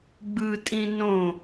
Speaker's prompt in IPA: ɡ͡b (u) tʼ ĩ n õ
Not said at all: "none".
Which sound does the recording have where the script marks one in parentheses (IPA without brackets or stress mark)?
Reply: ɯ